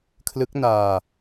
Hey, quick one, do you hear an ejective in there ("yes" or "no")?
no